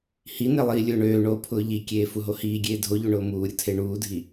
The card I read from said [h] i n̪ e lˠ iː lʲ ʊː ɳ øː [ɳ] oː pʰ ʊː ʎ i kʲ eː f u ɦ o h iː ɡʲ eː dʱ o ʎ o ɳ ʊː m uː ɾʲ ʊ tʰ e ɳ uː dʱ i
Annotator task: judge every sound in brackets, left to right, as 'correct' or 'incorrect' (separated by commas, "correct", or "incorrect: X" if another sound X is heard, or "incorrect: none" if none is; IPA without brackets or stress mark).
correct, correct